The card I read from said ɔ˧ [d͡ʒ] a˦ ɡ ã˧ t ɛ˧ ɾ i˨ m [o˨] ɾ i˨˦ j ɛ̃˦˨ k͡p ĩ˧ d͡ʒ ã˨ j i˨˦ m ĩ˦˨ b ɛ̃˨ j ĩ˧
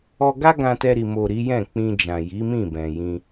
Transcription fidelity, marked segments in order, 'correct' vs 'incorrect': incorrect, correct

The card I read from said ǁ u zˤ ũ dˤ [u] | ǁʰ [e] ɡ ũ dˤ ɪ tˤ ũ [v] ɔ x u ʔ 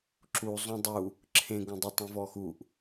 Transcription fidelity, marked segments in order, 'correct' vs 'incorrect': correct, incorrect, correct

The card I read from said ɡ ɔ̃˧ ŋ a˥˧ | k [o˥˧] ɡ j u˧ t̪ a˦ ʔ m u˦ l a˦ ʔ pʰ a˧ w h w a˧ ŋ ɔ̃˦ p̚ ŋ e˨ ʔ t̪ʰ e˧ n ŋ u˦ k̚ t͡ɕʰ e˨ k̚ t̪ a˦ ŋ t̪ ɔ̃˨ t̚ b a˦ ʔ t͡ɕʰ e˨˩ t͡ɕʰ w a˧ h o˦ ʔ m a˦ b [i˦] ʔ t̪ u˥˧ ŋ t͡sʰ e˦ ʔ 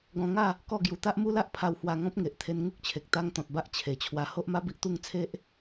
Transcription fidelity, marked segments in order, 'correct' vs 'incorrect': incorrect, correct

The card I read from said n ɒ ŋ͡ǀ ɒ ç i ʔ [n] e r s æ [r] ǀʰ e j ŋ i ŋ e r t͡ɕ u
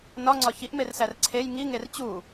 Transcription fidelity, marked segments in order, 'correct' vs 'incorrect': incorrect, correct

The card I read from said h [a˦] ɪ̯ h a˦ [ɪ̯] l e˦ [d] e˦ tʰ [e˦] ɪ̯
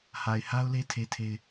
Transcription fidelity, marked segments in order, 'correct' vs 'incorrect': incorrect, incorrect, incorrect, correct

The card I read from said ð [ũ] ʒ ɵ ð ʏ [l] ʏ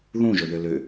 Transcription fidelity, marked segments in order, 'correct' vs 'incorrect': correct, correct

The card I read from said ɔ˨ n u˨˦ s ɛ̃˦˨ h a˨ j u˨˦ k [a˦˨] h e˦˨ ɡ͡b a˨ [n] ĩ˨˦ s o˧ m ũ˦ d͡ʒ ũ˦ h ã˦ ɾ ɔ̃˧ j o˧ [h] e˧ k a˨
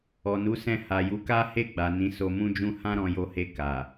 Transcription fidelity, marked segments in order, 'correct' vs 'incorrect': incorrect, correct, correct

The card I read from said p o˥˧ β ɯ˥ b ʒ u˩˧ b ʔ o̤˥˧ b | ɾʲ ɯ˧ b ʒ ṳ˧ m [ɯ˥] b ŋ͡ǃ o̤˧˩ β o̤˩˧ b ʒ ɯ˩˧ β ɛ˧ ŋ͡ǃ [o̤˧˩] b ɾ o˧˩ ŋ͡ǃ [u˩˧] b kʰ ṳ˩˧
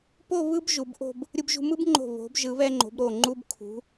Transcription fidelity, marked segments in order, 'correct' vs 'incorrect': correct, incorrect, incorrect

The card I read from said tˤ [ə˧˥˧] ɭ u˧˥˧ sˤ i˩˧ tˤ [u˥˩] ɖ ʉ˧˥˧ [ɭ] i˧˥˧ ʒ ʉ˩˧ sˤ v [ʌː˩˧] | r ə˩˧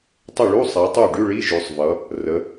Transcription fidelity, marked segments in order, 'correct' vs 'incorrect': incorrect, correct, correct, incorrect

